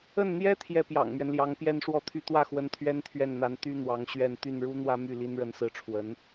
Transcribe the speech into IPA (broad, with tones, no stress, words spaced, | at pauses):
ə˥˩nn̪jɛ˥ t̪ʰjɛ˥˩pjɑ̰˨˩ŋmɥɛ˦nljɑ˧˥ŋ pjɛ˥˧nʂwɔ˥˧t̪ʰy˥˧ t̪wä˥˩xwə˧˥n t̪ʰɥɛ˥nt̪ʰɥɛ˥˩nn̪a˧˥n t̪y˥n̪wɑ˧˥ŋ ɕɥɛ˥˧n t̪y˥˩nɻu˥n̪wä˥my˥˩ li˥nɻə˥˧nsɹ̩˥˩ʈ͡ʂʰwə˧˥n